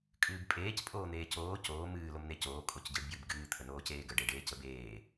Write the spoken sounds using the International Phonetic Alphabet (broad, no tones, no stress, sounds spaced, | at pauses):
kʼ ɨː b pʼ eː c pʼ oː n̪ eː c oː c oː m ɨː l o m n e c oː kʼ o c ɟ ɨ ɖ b j ɨ b ɡ ɨː t̪ʰ ə n oː c eː ɡ ə ɖ e ɖ eː c ə b eː